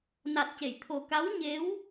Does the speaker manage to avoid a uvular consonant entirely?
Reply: yes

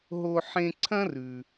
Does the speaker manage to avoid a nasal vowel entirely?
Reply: no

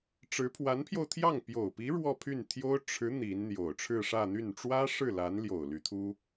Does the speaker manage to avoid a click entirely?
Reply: yes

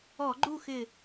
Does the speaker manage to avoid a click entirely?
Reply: no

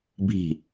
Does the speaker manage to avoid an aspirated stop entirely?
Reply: yes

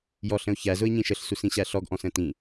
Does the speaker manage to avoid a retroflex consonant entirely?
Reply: yes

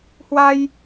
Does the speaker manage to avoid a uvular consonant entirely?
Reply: yes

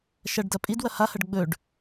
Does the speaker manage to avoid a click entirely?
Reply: yes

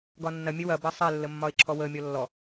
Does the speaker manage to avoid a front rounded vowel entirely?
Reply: yes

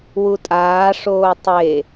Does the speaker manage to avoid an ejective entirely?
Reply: no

